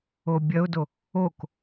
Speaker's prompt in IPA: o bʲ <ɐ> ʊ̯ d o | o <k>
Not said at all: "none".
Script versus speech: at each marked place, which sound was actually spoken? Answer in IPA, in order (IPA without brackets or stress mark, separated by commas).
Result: ɐ, k